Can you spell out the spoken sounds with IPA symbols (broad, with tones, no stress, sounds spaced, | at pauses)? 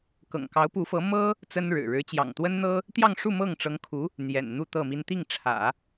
k ɤ̰˨˩ ŋ k ɑ˧˥ ʊ̯ p u˧˥ f ɤ˧˥ m ɤ˥ | t͡s ə˥ n ɻ ɻ̩˨˩ ɻ ɻ̩˧˥ t͡ɕ j ɑ̰˨˩ ŋ t̪ w ə˥ n n̪ ɤ˥ | t̪ j ɑ˥˧ ŋ ʂ u˥˧ m ɤ˥˩ ŋ ʈ͡ʂ ɤ˧˥ ŋ kʰ u˧˥ | n̪ j ɛ̰˨˩ n n̪ u˥˧ t̪ ɤ˥˩ m i˥ n t̪ i˥˩ ŋ ʈ͡ʂʰ ä̰˨˩˦